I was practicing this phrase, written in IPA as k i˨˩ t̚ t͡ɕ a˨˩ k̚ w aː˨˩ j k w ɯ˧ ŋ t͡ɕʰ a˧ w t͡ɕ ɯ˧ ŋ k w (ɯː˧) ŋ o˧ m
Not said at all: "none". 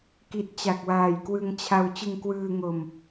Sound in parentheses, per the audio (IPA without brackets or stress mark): ɯː˧